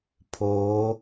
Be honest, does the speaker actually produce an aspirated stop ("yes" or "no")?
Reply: yes